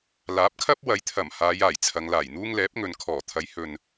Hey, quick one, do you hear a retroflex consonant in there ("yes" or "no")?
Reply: no